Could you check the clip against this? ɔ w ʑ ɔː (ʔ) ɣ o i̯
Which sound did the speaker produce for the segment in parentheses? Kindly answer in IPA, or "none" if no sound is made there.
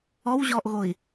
ʔ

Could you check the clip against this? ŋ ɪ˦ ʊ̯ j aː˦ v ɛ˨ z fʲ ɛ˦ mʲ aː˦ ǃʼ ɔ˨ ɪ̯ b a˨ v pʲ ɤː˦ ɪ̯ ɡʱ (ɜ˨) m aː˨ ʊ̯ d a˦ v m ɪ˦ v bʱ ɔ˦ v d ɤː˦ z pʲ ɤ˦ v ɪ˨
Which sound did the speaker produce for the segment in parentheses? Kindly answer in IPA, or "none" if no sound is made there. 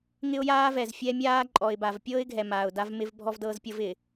ɛ˨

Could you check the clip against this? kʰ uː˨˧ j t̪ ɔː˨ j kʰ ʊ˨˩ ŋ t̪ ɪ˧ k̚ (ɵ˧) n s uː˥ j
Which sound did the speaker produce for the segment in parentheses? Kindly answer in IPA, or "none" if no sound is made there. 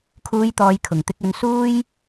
ɵ˨˧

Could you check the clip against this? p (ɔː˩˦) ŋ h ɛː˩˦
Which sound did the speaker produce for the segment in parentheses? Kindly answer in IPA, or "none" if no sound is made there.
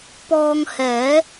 ɔː˧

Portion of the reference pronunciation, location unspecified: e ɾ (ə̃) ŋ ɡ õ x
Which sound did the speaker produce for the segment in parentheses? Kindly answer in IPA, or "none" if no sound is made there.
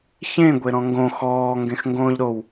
ɔ̃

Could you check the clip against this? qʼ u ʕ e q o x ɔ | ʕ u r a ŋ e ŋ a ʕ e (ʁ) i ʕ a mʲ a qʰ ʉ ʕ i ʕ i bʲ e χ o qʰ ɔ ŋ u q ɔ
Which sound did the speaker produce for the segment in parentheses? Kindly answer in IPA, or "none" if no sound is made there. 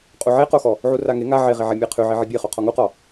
ʁ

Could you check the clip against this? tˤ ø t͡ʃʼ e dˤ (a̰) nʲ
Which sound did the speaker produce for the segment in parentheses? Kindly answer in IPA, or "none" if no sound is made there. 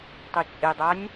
a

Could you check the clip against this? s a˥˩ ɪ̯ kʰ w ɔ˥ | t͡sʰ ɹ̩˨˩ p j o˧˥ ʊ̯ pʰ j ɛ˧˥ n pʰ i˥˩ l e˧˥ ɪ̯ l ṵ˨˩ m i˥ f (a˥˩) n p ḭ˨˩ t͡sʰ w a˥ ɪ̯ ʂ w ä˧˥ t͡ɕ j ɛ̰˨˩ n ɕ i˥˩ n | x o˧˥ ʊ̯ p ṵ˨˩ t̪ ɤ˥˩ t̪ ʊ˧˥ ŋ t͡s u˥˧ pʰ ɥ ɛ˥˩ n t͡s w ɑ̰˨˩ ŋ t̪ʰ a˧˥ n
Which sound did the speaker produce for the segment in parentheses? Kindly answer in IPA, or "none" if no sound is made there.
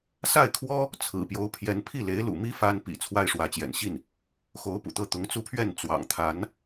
a˥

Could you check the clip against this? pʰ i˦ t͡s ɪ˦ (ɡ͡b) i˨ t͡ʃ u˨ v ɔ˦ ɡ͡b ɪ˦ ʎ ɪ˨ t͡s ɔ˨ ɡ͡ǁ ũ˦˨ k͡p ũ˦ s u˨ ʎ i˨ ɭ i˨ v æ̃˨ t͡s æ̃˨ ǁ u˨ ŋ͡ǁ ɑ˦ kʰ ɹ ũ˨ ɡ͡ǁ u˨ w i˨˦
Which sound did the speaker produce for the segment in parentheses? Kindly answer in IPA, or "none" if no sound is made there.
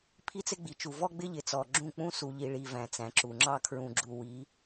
ɡ͡b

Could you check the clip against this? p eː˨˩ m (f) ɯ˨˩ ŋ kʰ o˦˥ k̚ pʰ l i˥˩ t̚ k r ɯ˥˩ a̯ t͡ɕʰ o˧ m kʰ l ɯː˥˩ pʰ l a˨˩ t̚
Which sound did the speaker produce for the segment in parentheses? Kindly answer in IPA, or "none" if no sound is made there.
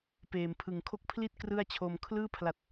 pʰ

